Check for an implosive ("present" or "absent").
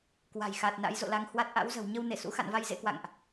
absent